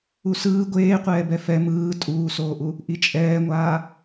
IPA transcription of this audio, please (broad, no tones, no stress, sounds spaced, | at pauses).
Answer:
u s ɯː ɡʷ eː qʷ ɛː b ɛ f ɛ m ɯː tʼ uː s oː ʔ u | ʔ i t͡ʃʼ ɛː ŋʷ aː